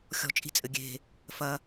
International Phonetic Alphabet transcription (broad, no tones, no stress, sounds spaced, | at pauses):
xʲ ɔ̤ t͡ʃʼ i̤ t͡sʼ ɘ ɡʲ e̤ | f ɐ